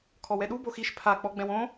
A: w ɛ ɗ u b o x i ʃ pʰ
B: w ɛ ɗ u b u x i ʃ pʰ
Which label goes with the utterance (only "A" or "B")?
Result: A